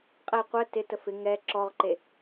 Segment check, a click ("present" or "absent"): present